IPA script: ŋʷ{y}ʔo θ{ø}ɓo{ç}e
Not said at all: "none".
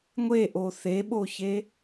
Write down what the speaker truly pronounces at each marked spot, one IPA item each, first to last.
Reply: e, e, ç

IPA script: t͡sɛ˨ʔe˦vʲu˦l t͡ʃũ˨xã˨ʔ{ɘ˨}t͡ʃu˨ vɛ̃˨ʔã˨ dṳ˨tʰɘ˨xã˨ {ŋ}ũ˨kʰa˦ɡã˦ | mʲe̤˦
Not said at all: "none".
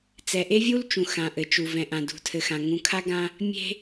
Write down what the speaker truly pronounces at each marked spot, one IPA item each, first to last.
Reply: ɘ˨, ŋ

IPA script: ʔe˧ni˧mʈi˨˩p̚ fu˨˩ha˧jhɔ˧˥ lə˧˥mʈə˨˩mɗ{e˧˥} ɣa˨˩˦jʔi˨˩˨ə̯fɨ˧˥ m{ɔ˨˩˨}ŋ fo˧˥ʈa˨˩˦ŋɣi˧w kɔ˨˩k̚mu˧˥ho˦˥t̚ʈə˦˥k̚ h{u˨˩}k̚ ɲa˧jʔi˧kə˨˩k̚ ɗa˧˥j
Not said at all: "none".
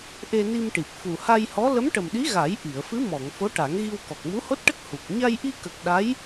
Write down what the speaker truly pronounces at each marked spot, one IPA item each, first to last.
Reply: i˧˥, ɔ˨˩˨, u˨˩

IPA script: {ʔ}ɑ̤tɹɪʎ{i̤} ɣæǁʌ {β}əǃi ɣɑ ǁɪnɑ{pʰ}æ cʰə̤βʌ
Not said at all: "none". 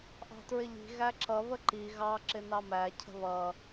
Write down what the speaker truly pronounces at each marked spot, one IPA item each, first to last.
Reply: ʔ, i̤, β, m

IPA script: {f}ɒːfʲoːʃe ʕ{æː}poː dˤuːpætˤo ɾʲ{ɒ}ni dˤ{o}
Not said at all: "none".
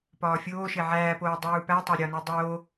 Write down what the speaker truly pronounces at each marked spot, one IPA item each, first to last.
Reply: p, æː, ɒ, o

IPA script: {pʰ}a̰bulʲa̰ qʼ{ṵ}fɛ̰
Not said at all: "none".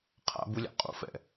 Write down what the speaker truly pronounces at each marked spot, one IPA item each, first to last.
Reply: qʰ, ṵ

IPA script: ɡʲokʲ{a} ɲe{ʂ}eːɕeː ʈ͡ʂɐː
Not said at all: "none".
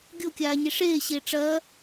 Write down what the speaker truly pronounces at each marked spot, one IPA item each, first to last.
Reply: aː, ʂ

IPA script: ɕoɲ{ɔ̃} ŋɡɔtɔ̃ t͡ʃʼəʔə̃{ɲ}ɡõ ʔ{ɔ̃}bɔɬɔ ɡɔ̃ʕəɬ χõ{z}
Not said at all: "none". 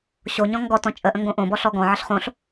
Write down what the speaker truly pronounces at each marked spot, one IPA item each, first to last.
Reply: ɔ̃, ŋ, õ, ɬ

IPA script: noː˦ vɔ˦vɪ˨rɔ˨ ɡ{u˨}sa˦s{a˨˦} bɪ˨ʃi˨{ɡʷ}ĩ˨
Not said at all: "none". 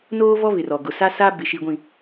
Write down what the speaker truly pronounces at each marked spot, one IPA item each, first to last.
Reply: ʊ˨, a˦, ɡʷ

